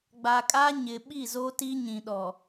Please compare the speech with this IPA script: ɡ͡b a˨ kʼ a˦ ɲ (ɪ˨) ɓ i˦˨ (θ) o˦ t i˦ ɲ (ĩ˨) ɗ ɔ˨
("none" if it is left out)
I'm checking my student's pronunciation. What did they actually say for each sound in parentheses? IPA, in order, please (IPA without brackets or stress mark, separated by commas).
ɪ˨, z, ĩ˨